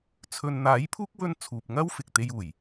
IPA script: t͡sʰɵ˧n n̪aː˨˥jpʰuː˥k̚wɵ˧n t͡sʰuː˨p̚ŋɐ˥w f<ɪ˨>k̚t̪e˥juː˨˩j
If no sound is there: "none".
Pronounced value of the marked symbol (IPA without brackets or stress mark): ɪ˨